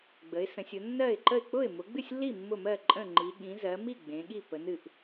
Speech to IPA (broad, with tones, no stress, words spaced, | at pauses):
ɡ͡bə˨˦ɪ̯ sə̃˨˦sʲʊ˨˦ nːɜ˥˩ɪ̯ǃə˥˩ɪ̯ k͡pʊ˥˩ɪ̯mʊ˨˦ɡ͡bɨ˥˩sʲlːi˥˩ mːʊ˥˩mɜ˥˩ǃʼə̃˥˩ŋ͡ǃi˨˦ ɠĩ˨˦zɜ˨˦mi˥˩ ɡ͡bẽ˨˦ɠi˥˩ pə˨˦nɨ˥˩ʔ